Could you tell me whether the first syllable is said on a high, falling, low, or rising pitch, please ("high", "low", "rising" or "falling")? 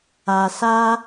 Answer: low